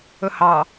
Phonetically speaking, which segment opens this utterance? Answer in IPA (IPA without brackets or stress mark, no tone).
ɵ